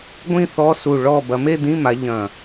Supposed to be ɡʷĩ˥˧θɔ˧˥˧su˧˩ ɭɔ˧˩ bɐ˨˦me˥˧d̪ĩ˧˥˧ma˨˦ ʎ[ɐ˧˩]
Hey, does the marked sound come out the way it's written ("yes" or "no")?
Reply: no